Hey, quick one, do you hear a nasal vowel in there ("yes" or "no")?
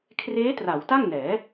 no